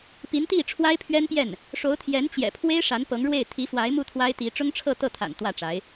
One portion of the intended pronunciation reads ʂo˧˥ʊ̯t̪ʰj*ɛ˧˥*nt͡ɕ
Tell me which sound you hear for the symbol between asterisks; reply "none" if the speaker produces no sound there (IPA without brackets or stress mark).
ɛ˧˥